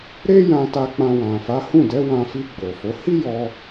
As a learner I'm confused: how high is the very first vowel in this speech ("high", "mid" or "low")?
mid